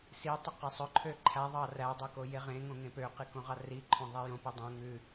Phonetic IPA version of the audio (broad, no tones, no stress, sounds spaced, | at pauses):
s i tˤ ɵ q e sˤ ɵ ǃʰ ø ǃʰ æ ðˤ ɑ r æ dˤ ø k o j e ʁ ẽ ŋ õ ŋ ẽ p ø q i k õ ʁ ɑ r i ǃʰ õ ðˤ i j õ p i dˤ õ ŋ ʉ